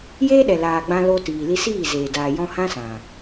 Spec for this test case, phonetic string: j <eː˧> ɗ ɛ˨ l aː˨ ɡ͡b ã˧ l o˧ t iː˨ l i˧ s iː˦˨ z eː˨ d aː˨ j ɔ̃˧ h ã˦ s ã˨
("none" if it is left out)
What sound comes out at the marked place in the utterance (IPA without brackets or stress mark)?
eː˦